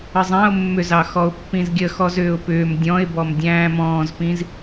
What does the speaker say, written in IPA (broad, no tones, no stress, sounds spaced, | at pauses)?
ə zˤ æ̃ ʊ̯ mː ʏ z ɑ x ɔ ʊ̯ pː ĩ z ɡʲ ə x ɔ z ʏː ʊ̯ p ʏː m dʲ ɔ̃ ɪ̯ b ɔ m dʲ æ̃ː m ɔ̃ː z p ĩ z